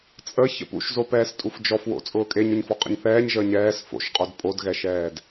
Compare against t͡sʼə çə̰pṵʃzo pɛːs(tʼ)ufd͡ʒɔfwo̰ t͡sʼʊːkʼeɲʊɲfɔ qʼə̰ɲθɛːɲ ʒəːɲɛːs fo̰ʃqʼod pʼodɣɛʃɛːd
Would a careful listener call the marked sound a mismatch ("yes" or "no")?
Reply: no